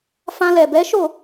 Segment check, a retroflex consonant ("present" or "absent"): absent